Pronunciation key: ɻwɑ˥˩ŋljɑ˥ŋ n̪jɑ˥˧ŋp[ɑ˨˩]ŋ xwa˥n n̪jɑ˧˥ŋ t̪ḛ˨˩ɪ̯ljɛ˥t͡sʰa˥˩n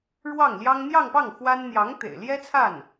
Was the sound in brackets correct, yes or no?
no